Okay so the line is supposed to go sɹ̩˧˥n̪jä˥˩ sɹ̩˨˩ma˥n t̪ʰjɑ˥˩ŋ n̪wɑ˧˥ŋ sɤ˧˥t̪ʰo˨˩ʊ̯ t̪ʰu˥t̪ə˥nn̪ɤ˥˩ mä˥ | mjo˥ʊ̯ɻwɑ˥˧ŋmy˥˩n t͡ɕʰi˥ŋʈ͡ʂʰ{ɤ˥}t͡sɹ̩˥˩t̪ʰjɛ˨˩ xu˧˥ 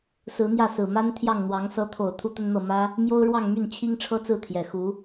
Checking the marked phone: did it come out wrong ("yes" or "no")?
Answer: no